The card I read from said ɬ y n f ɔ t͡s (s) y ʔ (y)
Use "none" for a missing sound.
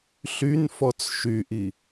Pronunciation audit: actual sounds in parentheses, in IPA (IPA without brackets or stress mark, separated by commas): ʃ, i